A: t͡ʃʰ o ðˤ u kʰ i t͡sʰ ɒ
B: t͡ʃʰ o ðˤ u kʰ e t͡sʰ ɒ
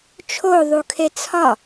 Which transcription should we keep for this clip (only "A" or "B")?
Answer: B